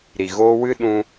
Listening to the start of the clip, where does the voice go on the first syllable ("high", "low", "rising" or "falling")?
low